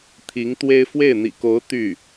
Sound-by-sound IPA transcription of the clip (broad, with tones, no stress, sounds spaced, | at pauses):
t̪ʰ i˧˥ ŋ t̪ w e˥ ɪ̯ f w e˥˩ ɪ̯ n̪ ḭ˨˩ k o˧˥ ʊ̯ t̪ y˥˩